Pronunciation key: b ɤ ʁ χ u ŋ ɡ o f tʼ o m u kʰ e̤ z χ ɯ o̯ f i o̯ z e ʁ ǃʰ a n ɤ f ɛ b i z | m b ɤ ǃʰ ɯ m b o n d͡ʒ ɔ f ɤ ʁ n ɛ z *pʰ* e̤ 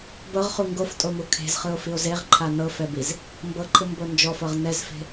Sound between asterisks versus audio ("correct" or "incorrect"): incorrect